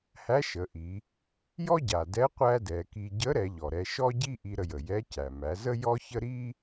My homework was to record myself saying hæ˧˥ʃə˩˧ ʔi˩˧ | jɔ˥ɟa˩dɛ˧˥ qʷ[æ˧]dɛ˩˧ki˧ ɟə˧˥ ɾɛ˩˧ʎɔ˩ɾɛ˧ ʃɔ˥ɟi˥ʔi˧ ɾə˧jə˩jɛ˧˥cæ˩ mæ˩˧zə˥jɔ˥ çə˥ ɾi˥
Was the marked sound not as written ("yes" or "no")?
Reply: yes